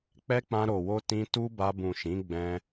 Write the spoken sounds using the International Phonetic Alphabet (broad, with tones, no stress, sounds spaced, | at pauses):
k͡p ɛ˦ k͡p ã˧ ɾ o˨ w o˧ t ĩ˧ t u˦ b a˧ b ũ˨ ʃ ĩ˨˦ ɡ͡b ɛ̃˧